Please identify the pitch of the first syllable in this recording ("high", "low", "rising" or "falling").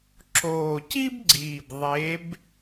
low